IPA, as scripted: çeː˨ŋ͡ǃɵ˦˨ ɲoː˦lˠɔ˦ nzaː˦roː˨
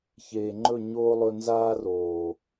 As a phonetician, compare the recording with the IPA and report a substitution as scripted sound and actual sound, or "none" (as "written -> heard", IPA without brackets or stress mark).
ɔ˦ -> ɵ˦